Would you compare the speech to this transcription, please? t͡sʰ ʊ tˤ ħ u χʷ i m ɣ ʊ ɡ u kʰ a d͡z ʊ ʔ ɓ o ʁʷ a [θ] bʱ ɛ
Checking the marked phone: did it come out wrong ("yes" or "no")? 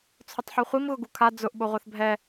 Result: no